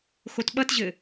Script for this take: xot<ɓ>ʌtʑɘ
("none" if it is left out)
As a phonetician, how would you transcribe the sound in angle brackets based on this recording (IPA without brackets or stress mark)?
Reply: ɓ